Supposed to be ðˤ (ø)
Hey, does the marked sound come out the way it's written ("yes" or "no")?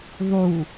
no